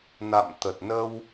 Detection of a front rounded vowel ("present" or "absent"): absent